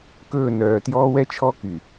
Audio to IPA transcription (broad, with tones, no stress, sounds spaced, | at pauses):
k ɵː˦˨ n œː˨ t j ɔː˦ w ɛ˦ t͡ʃʰ ɔ˦ k y˨